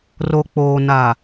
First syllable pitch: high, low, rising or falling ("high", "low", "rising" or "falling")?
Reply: low